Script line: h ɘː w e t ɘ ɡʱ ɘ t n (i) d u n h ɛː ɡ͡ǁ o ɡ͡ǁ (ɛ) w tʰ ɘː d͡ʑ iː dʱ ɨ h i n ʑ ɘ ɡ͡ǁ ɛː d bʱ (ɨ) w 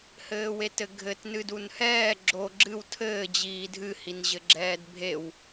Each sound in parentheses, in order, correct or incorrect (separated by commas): incorrect, incorrect, incorrect